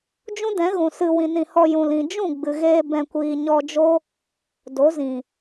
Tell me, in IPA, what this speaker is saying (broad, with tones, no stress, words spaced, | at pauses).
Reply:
d͡ʒũ˦dɛ̃˨˦ɣũ˨ sɨ˧ wĩ˨nĩ˨hɔ˧ jũ˨lĩ˨ d͡ʒũ˦˨ɡ͡bɨ˨ɣeː˧ bɛ̃˨kʷiː˨ ɲɔ˧d͡ʒo˦ | do˨˦zĩ˨